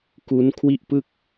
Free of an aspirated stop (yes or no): no